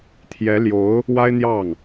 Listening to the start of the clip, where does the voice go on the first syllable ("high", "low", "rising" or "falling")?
rising